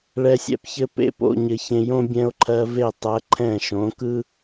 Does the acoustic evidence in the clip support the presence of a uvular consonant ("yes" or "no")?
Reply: no